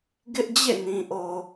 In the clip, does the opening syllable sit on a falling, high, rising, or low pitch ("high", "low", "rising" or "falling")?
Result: high